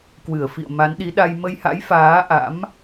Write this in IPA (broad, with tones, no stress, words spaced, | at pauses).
kwɨ˧˩ə̯fḭ˧˨ə̯ ma˨˦nɗi˨˦ɗa˧j mə˧jha̰˧˥j faː˨˦ʔa̰˧˥m